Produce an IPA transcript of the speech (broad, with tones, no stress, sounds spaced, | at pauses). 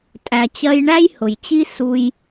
tʼ æ˩ t͡ɕ ɜ˧ j ɳ æ˥ j h ʊ˩ j t͡ɕ i˥ s u˧ j